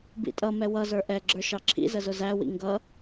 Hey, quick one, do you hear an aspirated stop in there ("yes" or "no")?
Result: yes